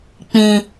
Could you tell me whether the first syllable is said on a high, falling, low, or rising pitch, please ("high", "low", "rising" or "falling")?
low